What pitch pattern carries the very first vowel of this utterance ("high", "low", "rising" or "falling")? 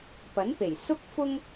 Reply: rising